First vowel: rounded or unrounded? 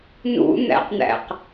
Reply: rounded